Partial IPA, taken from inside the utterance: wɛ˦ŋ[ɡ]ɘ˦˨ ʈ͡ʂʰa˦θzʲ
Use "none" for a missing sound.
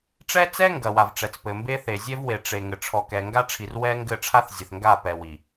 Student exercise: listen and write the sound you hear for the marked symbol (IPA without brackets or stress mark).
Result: ɡ